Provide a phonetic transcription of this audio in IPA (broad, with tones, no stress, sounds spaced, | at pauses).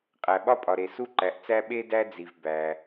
qʼ æ˩ ɓ ɒ˥ pʼ ɒ˩ ɾ e˩ s u˥ ǃ æ˩ ʔ t͡s æ˥ ɓ e˥ d æ˥ d͡z i˩ v b æ˩